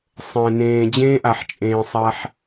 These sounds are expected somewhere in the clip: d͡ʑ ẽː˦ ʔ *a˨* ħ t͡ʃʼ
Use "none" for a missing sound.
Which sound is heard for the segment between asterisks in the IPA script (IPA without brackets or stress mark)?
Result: a˨